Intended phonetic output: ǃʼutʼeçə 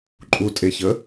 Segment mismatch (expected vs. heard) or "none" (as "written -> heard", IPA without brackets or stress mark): none